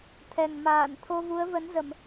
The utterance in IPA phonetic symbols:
t̪ʰ ɛ˨˩ ŋ m aː˧˩ n t̪ʰ o˧ v u˨˦ ə̯ v ə˨˦ n z ə˧˩˨ m

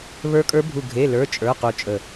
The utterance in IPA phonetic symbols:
β ə˞˦˥ kʼ ə˞˦˥ bʱ u˦˨ ɡʱ e˧˥˧ l ə˞˧˥˧ t͡ʃʼ ə˞˧˥˧ q u˦˨ t͡ʃʼ ə˦˨

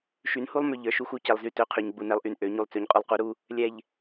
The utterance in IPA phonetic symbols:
ʃ y˨˦ n h u˦ lˠ m ø˨ ʎ ə˞˨ ʃ u˦ x u˦ c ɛ˨ lˠ z y˦˨ t ø˦ qʰ y˨ ɲ ɡ͡b u˨ n ɛ˦ lˠ ʔ y˨ n ʔ ø˨˦ ɲ u˨ lˠ t͡s ø˨ ɲ qʼ u˨ lˠ q u˨˦ ɾ u˦ | lʲ ɛ˨ ʎ

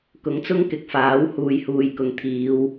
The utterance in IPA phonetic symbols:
k ʊ˨˥ ŋ t͡s ʊ˥ ŋ k ɪ˨˥ k̚ f aː˨˥ w h uː˨ j h uː˨ j k ʊ˨ ŋ t̪ʰ iː˨˧ w

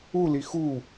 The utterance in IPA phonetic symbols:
u l i x u

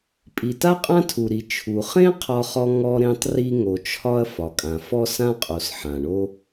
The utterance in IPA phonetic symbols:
pʼ i˩ t a˥ qʼ ã˥ tʰ u˩ ɾ i˩ t͡ʃʰ u˩ χ ẽ˥ qʰ ɒ˥ χ ɔ˥ ŋ ɔ˥ ɾ ẽ˥ tˤ r i˥ ŋ o˩ t͡ʃʰ ɒ˥ ɐ̯ f ɒ˩ kʼ ã˩ f ɔ˥ s ã˥ qʼ o˩ s ħ ã˩ ɳ o˥

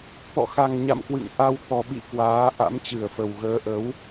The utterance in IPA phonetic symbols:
t̪ ɔ̰˧˨ x a˨˩ ŋ ɲ a̰˧˨ m k w ɨ̰˧˨ ŋ ʔ a˧ w t̪ ɔ˨˩ ɓ ḭ˧˨ k w aː˨˦ ʔ a̰˧˥ m t͡ɕ ɨ˧˩ ə̯ f ə˨˩ w ɣ əː˨˦ ʔ ə˨˦ w

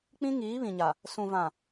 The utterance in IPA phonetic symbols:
k͡p ĩ˦ ŋ iː˨˦ β ĩ˨ ɲ a˨ | s ũ˨ v ã˨

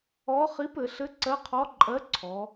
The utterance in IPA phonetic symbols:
ɔ˧˥ χ i˧˥ p ɘ˩˧ ɬ ɘ˧˥ ǀ ɜ˧˥ qʰ ɔ˧˥ ǃʼ ɜ˧˥ ǀʰ ɔ˩˧

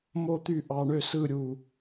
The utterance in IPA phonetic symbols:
m o˥˨ t̪ y˥˨ ʔ ɑ˧ ɳ ø˥˨ s ɯ˥˨ ɾʲ u˧˩

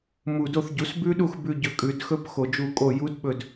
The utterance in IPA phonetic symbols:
m u˧˩ d o˥˩ θ ɟ u˩˥ s b ʉ˦˥ ɗ u˥˩ x b ʉ˧˩ ɟ ɵ˩˥ kʼ ʉ˩˧ d x ɵ˦˥ p x o˧˩ d͡ʒ u˥˩ kʼ o˥˩ j u˦˥ d ɓ ɵ˧˩ d

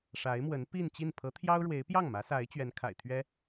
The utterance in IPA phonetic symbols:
ʂ a˧˥ ɪ̯ m w ə˧˥ n p i˥˧ n t͡ɕ i˥˩ n pʰ ɤ˧˥ t̪ʰ j ɑ˥ ʊ̯ ɻ w e˧˥ ɪ̯ p j ɑ˥˩ ŋ m ä˧˥ s a˧˥ ɪ̯ t͡ɕ ɥ ɛ˧˥ n kʰ a̰˨˩ ɪ̯ t̪ʰ ɥ ɛ˥

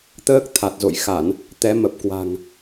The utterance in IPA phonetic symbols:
t̪ əː˦˥ k̚ t̪ʰ a˨˩ t̚ z o̰˧˨ j x a˧˩˨ n | t̪ ɛ˨˦ m ə˨˩ p̚ k w a̤˨˩ ŋ

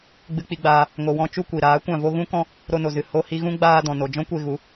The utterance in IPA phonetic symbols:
ɡ͡b ɨ˧ k͡p i˧ ɡ͡b aː˧ | ŋ o˨ w ɔ̃˧ t͡ʃ u˦ kʷ i˨ ɾ aː˨˦ kʷ ã˦˨ v o˦ ɣ ũ˦ k ɔ̃˦ | ɾ o˧ n o˨ z ɨ˨ h o˧ h i˧ ɣ ũ˦ ɡ͡b aː˧ d ɔ̃˨ n o˨ d͡ʒ ɔ̃˦ kʷ e˧ ɣ u˨˦

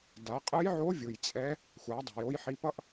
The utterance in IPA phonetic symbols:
d a˩˧ qʼ ɯ˧˥ j ʕ o˧˥ vʲ ɯ˩ j t͡sʼ ɛ˧˥ | xʷ a˩˧ dˤ e̤˩ j o˧ j ħ i˧ p ʌ˥ ʔ

